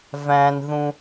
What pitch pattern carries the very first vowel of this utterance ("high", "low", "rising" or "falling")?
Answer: low